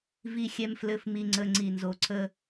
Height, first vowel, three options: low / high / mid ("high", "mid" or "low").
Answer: high